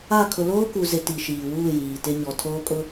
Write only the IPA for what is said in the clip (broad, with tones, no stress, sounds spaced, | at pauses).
a˦˨ kʰ ʊ˨ l oː˦ k u˨ z ɪ˨ t i˨ ʃ iː˨ w uː˦˨ j iː˨ t ɪ˦ ɲ ɔ˨ tʰ oː˦ kʼ ʊ˦